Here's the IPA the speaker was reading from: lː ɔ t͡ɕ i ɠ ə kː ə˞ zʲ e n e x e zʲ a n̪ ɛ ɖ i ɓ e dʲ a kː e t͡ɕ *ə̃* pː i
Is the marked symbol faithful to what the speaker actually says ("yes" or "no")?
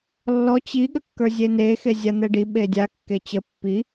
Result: no